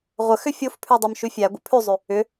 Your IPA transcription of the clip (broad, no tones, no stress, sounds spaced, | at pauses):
ʁʷ ə x ʏ fʲ o f pʰ ʉ dˤ ø m ʃ ʉ fʲ æ ɡʷ ə̰ pʰ ʉ zˤ ʉ | ʏ